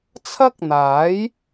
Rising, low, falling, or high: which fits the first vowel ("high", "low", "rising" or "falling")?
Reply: high